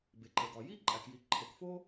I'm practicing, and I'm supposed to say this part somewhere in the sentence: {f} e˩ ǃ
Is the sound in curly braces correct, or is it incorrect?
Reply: incorrect